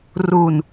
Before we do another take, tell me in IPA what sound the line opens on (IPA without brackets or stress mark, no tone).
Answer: r